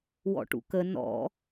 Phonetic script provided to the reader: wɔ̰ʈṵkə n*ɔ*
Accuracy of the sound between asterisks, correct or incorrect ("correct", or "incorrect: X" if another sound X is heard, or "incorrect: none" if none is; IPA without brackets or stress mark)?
incorrect: ɔ̰